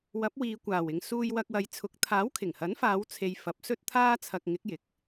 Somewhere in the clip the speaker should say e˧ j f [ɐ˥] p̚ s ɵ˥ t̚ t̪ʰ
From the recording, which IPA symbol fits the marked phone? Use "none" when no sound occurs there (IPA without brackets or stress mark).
ɐ˨˥